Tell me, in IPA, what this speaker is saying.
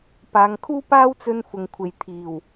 p aː˨ ŋ kʰ uː˥ p aː˥ w t͡s ɵ˧ n f ʊ˨ ŋ kʷʰ e˨ j t̪ʰ iː˨˩ w

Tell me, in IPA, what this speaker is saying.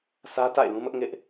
sʰ ä˦ t a̰˦˨ ɪ̯ l ũ˦ m ʊ˦ ʔ ŋ ɪ˦ ʔ

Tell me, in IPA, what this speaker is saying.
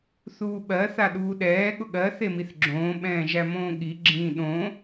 θ uː ɓ ɜ θ a ɗ uː ɗ ɛː ɠ ʊ ɠ ɜ θ e m i θ ɡ͡ǁ õː ɓ ɛ̃ː ʒ æ m õː ɠ i ɡ͡ǁ ĩː ɗ õ

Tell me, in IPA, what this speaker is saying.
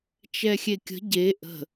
t͡ʃ ɛ xʲ e kʲ ə̤ ɟ e ʔ ə̤

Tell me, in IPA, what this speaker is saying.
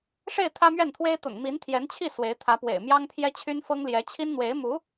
ʂ e˥˩ ɪ̯ t̪ʰ ä˥ m ɥ ɛ˥˩ n t̪ʰ w e˥ ɪ̯ t̪ ʊ̰˨˩ ŋ m i˧˥ n t̪ʰ j ɛ˧˥ n t͡ɕʰ i˥˩ s w e˧˥ ɪ̯ t̪ʰ ä˧˥ p w ḛ˨˩ ɪ̯ m j ɑ˥ ŋ pʰ j ɛ˥ t͡ɕʰ y˥ n f ɤ˥ ŋ l j ɛ˧˥ t͡ɕʰ i˥ n n̪ w e˧˥ ɪ̯ m u˧˥

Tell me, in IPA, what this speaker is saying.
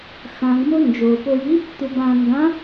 x ã ɡ m o n d͡ʒ o p o j i | t̪ u b ã ŋ ɡ ã

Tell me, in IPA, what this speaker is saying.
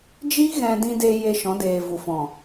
d͡ʒ i˦ ɣ ɛ̃˧ d ĩ˧ d e˧ j e˧ ʃ ɔ̃˨˦ d eː˨ v u˨ f ɔ̃˨

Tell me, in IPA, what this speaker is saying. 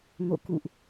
ŋ o̰˧˨ k ṵ˧˨ ʔ

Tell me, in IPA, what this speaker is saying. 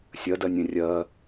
sʲ ɜ d ɜ nʲ ẽ rʲ ɜ

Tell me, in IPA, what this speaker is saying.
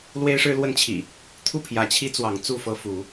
l w e˦ ɪ̯ ʂ ɻ̩˦ l w ə˦ n t͡ɕʰ ḭ˨˩ | t̪ʰ u˥˨ pʰ j ä˨˦ t͡ɕʰ i˦ t͡s w ɑ˨˦ ŋ t͡s u˥˨ f ɤ˦ f u˨˦

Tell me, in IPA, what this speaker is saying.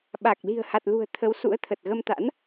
ɓ a˨˩ k̚ l i̤˨˩ ə̯ h a˨˩ t̚ l ṳ˨˩ ə̯ t̪ʰ ə˨˦ w s ṵ˧˥ ə̯ t̪ʰ ə˨˩ t̚ ɣ ə˧ m t̪ a̰˧˥ n

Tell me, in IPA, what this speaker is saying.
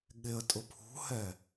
ɠ ɪ ə̯ tʼ ʊ pʰ ṳ h ɛ

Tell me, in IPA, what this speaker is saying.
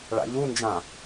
ɭ a̰ ʎ u n d͡ʒ ã

